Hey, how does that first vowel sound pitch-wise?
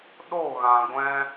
falling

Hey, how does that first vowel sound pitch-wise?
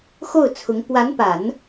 falling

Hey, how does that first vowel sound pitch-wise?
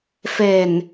low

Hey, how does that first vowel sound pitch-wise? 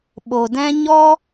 low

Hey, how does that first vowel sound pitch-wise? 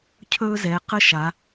high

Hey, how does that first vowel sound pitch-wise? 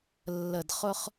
low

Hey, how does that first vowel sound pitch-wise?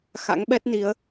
rising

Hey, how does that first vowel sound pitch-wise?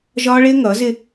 high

